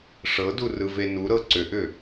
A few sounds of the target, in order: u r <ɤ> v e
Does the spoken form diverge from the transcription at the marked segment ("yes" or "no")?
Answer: yes